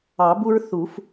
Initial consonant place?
labial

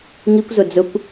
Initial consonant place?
velar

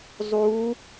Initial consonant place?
alveolar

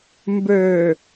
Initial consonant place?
labial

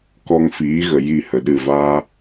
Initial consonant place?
velar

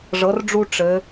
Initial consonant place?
retroflex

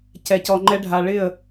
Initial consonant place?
palatal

